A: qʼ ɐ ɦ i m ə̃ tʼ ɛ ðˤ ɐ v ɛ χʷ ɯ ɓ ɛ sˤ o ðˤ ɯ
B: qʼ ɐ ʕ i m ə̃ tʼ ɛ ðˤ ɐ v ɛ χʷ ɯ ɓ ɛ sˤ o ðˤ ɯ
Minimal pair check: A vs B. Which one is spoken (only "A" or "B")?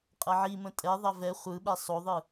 B